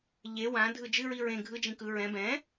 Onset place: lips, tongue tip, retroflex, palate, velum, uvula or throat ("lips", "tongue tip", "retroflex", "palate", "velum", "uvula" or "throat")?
palate